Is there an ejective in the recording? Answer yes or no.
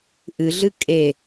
yes